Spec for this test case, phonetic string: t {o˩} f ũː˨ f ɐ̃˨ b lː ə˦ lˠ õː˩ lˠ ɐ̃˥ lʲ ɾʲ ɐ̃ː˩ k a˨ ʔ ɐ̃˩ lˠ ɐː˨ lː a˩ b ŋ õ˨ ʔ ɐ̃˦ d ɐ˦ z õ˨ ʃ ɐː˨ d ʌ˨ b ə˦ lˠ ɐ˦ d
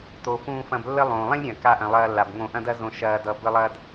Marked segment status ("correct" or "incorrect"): correct